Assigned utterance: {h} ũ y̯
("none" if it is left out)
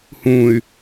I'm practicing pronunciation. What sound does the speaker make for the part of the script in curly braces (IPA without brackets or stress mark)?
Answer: h